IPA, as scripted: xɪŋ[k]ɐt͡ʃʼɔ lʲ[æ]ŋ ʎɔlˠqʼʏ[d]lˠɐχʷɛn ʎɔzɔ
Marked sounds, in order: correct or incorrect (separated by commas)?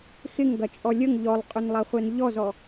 incorrect, incorrect, incorrect